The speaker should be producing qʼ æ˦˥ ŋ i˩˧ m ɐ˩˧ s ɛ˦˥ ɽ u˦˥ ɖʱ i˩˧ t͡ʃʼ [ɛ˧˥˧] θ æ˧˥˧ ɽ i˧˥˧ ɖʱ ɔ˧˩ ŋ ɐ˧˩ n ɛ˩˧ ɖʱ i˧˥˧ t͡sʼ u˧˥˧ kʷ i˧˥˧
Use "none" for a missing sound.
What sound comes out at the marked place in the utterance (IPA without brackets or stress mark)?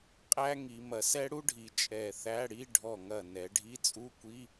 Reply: ɛ˧˩